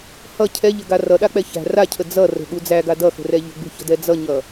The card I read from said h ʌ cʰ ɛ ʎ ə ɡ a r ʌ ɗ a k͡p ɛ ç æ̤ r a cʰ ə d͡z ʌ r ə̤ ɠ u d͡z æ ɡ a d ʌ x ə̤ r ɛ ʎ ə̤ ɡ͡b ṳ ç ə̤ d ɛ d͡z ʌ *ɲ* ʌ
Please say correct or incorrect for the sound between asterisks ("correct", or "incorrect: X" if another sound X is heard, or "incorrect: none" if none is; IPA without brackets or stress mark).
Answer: correct